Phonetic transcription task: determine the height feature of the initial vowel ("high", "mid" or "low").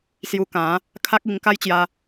high